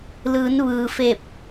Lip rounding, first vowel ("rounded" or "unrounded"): unrounded